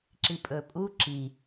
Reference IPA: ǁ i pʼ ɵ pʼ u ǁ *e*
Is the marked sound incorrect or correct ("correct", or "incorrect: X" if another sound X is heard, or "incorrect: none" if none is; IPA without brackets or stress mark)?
incorrect: i